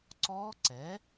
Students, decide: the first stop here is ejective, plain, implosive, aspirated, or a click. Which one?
click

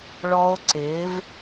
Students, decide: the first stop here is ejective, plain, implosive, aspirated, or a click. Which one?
click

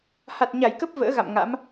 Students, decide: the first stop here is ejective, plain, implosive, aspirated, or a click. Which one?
plain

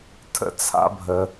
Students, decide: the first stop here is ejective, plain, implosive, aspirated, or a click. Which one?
aspirated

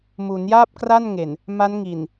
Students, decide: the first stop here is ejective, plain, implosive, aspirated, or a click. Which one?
plain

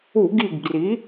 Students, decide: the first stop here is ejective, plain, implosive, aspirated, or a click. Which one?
plain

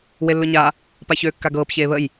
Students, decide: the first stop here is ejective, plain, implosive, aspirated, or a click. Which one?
plain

